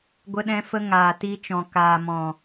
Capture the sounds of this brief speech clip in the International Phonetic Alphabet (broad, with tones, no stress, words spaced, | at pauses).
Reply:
ɡʷə˧ɗɛ̃˧fə˧ŋaː˨ ti˧t͡ʃɔ̃˨ kaː˨mɔ̃˨